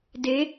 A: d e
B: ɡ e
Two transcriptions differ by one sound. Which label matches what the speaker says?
A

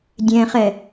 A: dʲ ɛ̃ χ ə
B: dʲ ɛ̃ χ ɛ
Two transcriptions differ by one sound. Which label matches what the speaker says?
B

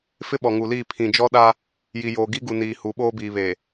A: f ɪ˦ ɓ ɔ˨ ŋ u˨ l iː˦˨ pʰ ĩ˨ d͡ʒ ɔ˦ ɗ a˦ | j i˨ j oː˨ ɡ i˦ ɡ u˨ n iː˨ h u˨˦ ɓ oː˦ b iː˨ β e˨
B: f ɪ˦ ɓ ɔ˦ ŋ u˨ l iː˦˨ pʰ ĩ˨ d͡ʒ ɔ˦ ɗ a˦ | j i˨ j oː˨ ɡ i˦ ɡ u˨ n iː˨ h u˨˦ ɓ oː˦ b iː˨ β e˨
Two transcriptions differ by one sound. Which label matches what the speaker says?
A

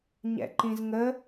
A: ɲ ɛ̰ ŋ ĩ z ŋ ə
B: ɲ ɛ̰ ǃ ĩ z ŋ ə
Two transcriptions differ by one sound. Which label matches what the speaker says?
B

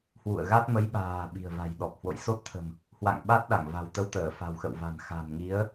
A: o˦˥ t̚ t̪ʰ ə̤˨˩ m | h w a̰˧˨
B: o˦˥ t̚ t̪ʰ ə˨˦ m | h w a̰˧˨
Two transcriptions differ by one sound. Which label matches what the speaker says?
A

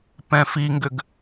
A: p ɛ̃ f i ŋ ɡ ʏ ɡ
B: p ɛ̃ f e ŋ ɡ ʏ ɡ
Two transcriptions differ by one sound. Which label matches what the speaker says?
A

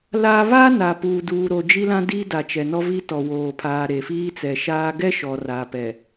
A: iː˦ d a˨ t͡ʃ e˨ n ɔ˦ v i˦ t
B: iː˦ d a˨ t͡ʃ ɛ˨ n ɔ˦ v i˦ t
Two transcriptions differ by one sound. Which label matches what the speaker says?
B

